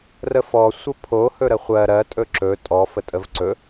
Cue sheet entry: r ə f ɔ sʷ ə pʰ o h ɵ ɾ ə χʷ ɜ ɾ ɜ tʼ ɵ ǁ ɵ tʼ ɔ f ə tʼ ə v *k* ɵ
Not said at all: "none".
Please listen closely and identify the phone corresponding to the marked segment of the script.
ǀ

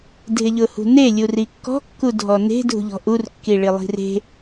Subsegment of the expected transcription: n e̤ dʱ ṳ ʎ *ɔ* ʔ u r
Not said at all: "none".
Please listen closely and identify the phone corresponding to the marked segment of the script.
ɔ̤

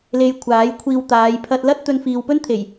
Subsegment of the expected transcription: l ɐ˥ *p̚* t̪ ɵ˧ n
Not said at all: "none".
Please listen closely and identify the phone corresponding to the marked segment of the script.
t̚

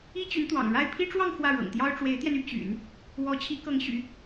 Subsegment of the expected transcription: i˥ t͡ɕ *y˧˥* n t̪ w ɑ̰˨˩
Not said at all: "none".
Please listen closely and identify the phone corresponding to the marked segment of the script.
y˧˥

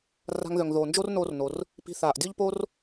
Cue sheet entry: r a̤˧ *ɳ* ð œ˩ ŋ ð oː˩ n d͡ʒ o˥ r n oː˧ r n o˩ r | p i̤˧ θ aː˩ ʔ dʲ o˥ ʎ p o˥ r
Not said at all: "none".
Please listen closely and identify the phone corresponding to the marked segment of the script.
ŋ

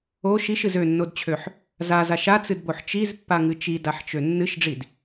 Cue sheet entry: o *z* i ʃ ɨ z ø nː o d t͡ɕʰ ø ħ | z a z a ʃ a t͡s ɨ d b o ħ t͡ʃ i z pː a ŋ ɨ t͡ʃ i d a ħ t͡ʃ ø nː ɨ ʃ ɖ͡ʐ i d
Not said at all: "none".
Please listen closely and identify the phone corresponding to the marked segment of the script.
ʃ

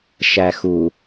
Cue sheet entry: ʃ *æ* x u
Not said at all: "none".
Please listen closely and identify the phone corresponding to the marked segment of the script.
æ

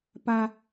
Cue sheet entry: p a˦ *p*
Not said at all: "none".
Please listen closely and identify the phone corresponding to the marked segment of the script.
none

